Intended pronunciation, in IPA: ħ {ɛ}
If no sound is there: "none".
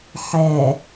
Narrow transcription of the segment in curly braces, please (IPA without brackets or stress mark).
ɛ